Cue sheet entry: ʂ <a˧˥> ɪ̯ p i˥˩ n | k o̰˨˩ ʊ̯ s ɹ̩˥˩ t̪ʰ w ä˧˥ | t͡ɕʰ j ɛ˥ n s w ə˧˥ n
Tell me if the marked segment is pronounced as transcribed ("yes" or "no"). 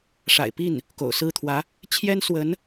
no